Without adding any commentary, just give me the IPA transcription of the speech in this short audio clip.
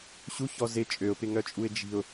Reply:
ɕ u ç ɔ z ɪ t͡ʃʼ ø ʊ̯ p ɪ ŋ œ t͡ʃʼ u ɪ̯ d͡ʒ i̤ ʊ̯

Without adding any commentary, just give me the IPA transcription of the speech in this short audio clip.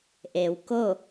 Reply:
ʔ e˩˧ w k o˥˨

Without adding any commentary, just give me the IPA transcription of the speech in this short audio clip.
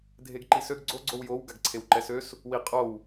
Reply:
dʱ e ɡ ǃ i s ø ɡ ɡ͡ǀ o ɡ͡ǀ o w j o w ɡ a ɡ ǀʰ e w ǃ ɛ s ø s | w i qʼ o w

